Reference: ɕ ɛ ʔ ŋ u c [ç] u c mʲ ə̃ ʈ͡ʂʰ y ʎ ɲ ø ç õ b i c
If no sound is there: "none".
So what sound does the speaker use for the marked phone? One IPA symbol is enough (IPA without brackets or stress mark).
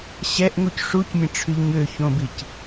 ʂ